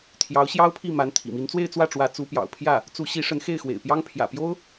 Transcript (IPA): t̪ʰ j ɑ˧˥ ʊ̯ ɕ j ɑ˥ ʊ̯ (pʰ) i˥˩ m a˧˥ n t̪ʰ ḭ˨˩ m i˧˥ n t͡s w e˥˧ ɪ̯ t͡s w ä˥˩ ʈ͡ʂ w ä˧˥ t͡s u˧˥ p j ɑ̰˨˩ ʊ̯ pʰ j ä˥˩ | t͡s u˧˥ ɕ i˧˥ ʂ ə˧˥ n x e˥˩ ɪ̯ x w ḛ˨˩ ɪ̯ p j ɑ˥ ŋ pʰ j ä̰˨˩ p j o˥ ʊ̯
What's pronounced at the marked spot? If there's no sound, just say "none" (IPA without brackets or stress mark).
pʰ